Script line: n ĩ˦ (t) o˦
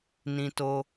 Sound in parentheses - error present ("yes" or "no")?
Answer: no